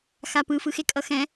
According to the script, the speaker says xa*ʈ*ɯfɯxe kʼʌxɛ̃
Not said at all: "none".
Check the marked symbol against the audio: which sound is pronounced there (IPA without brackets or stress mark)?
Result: p